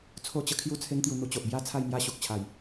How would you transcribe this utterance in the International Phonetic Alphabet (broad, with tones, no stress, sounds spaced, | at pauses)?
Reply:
t͡sʰ o˥˧ t͡ɕ ə˧ kʰ j u˦ t͡sʰ e˦ ŋ t̪ j u˧ n̪ u˧ t͡ɕ o˨ ʔ b j a˦ t͡sʰ a˥˧ j m j a˦ ɕ u˨ k̚ t͡ɕʰ a˨˩ j